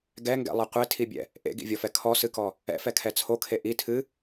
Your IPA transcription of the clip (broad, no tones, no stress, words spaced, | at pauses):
ɡɛŋɡɛ̰lˠɨ qʷetʰibʲɛ̰ | ʔḛɡḭvʲɔfɛ kʰɔsɨkɔ | ɛ̰fɛkʰɛ t͡sʰokʰe ʔi tʰɨ